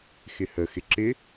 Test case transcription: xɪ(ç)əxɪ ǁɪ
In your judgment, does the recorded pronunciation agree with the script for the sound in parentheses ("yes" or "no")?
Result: no